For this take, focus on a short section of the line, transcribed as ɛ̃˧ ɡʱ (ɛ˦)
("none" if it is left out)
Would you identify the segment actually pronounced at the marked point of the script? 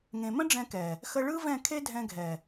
ɛ˨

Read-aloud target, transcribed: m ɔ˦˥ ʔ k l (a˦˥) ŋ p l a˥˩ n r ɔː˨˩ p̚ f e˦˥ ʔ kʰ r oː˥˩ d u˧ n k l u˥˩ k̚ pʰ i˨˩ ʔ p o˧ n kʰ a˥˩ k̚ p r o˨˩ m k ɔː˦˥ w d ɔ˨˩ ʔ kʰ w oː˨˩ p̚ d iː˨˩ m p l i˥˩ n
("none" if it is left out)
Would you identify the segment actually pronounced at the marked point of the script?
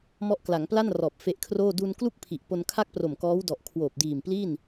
a˩˦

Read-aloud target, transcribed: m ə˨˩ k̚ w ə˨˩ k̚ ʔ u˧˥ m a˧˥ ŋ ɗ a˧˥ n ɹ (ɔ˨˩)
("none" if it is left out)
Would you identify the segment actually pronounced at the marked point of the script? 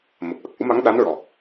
ɔ˨˩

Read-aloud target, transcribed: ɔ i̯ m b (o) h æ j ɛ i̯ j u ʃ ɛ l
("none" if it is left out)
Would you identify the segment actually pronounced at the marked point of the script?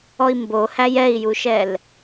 o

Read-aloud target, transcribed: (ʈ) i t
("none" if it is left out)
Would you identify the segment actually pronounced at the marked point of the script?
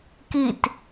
k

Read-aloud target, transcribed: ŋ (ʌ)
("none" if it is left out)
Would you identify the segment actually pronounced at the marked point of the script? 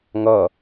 ʌ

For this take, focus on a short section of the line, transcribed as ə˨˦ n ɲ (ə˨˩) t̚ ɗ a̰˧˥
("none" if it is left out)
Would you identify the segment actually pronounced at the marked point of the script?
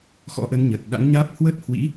ə˨˩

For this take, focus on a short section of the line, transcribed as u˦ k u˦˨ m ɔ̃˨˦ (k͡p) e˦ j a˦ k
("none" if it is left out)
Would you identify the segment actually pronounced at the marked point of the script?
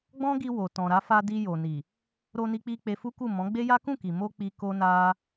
ɡ͡b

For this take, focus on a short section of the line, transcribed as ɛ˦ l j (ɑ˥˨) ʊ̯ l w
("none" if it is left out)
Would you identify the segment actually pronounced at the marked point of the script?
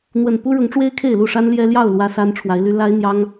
ɑ˥˨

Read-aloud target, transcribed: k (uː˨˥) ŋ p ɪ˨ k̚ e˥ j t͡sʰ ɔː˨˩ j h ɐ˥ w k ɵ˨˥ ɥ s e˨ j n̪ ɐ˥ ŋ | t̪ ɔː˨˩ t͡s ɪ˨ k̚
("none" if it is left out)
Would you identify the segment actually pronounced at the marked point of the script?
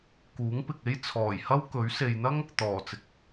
uː˨˥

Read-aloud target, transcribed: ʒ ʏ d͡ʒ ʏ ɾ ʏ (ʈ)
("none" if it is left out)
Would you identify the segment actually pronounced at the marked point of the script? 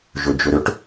ʈ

